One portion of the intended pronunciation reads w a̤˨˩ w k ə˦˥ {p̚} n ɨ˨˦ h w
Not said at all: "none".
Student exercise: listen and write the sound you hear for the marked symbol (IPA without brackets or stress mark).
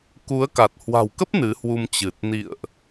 p̚